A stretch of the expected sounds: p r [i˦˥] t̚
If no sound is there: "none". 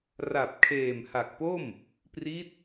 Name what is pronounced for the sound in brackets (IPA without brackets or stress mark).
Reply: i˦˥